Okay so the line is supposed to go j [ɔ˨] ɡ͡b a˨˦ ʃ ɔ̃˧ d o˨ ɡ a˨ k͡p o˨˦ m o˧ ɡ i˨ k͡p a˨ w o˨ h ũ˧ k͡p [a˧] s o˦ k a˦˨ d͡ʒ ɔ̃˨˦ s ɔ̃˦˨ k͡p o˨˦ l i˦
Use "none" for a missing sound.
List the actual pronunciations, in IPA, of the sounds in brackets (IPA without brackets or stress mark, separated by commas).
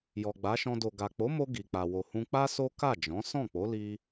ɔ˨, a˦